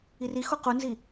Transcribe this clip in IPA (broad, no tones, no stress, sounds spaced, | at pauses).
i r i x o q u n z i